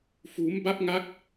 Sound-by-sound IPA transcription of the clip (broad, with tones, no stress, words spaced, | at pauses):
fuː˦˥m ba˦˥p̚ŋa˦˥k̚